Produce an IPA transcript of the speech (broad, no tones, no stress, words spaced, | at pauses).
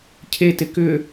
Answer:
cʰetɪ kʏ